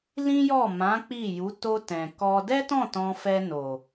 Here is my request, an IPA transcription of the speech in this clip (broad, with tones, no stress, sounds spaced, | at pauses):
l ĩ˦ j ɔ˦˨ m ã˨˦ k͡p i˦˨ j u˨˦ t o˧ t ɛ̃˨ k ɔ˧ d ɛ˦ t ɔ̃˦˨ t ɔ̃˧ f ɛ˧ n o˨